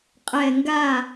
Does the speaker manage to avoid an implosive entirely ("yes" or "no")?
yes